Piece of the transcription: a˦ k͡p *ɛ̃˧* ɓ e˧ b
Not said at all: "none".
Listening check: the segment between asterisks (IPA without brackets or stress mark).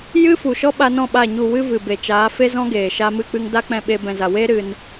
ɛ̃˧